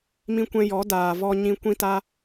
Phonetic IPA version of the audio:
m ĩ˧ kʷ ɛ̃˧ j ɔ˨˦ d aː˨ v ɔ˧ ɲ ĩ˧ kʷ ĩ˧ t a˧

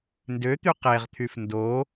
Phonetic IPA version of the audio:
n d ø t̪ y q e ʁ t̪ʰ y f n d o

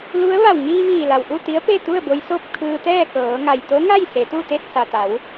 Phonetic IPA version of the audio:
l u˧˥ ə̯ ʋ a˧˩ w ŋ iː˧ ʋ iː˧˩ l a˩ w ʔ u˥˨ t̪ i˧˥ ə̯ p e˥˨ t̪ u˥˨ ə̯ b o˧ j s o˥˨ p̚ kʰ ɯː˧ t̪ ɛː˥˨ k ɤː˩˧ ŋ a˩ j t̪ o˧˥ ŋ a˥˨ j s e˩˧ t̪ u˥˨ t̪ e˥˨ t̚ s a˩ t̪ a˩˧ w

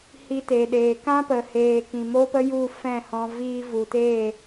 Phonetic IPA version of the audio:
h i˧ t eː˨ ɗ eː˨ k ã˦ p ə˨ h eː˨ k ĩ˨ m o˦ p ə˦ j u˦˨ f ɛ̃˦˨ h ɔ̃˧ v iː˧ v u˨ t e˦˨

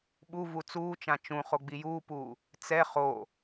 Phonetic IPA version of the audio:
ɓ u v u t͡s uː t͡ʃ ã t͡ʃ ũ χ o ɡ͡b i j uː p uː | t͡s ɛ χ o

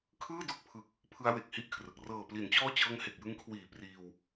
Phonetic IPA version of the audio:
kʰ ɯː˥˩ d o˦˥ k̚ pʰ ɯ˨˩ k̚ | pʰ ɯ˦˥ a̯ w e˨˩ k̚ h i˦˥ ʔ kʰ r ɯ˨˩ k̚ r ɤː˨˩ p l i˩˦ n t͡ɕ ɔː˦˥ t͡ɕ ɤː˧ ŋ h e˨˩ k̚ j ɯ˧ ŋ kʰ w iː˨˩ p r iː˧ w

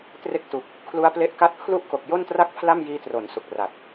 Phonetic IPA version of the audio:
t r e˦˥ k̚ t u˨˩ k̚ | kʰ l u˦˥ a̯ p l e˦˥ ʔ k a˦˥ t̚ pʰ l u˥˩ ʔ k o˨˩ k̚ j o˥˩ n t r a˥˩ k̚ pʰ l a˥˩ m j iː˦˥ t r o˩˦ n s u˨˩ k̚ r a˨˩ t̚

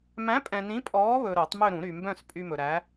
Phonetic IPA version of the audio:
m æ̃˨˥ pʼ ɛ̃˨ n ĩ˨˥ pʼ ɔː˨˥ β ɵ˨ ɾ o˨˩˦ tˤ m ø˦˨ ɾ ũ˨˩˦ ɾ y˨ m b œ̃˦˨ s pʼ y˦ m ɵ˨ ɾ æ˨˥

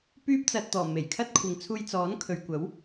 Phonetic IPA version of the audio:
p yː˥ p̚ t͡s ɐ˧ t̚ t̪ ɔː˨˩ m e˨˩ j kʰ ɐ˥ t̚ kʷʰ ɪ˨ ŋ t͡sʰ uː˧ j t͡s ɔː˨˥ n kʰ ɵ˨ ɥ kʷ ɐ˨˥ w

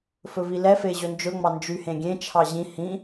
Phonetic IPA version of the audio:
f ɵ v i l ɛ f e ʑ ɵ n d͡ʒ ɵ ŋ͡m ɑ n d͡ʒ y h ẽ ɡʲ ẽ t͡ʃʰ ɑ ʑ ĩ h ĩ

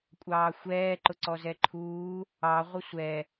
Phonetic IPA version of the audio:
kʷʼ ɑː xʷ ɛː ǃ ʊ ǀ ɔ z ɛ ǃʰ uː | ɑ ʁʷ ə sʷ ɛ

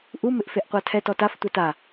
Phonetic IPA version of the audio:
ʔ u m ɪ ʔ f e ʔ qʷ a tʰ ɛ t ɔ t a f tʷ ɛ t a

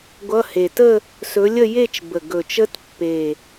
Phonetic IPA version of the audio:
ɡʷ ʌ˧˥˧ h e˨˩ t ə˥˧ | s ɵ˨˦ lʲ ə˥˧ j e˥˧ t͡ʃ b ə˨˩ ɡ ɵ˨˩ t͡ʃ ə˦˥ t pː e˨˩

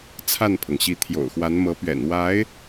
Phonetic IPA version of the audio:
t͡sʰ a˥˩ n pʰ ɤ˩ ŋ ɕ i˧˥ t̪ʰ j o̰˨˩ ʊ̯ x w a˧˥ n m ɤ˧˥ p ɥ ɛ̰˨˩ n w a˧˥ ɪ̯

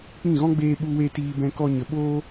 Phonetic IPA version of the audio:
k͡p ĩ˦˨ ɣ ɔ̃˦ ɡ͡b eː˦ ɓ u˦ w e˦ t iː˧ b ɛ̃˧ k ɔ˦ ɲ ə˧ ɓ oː˦

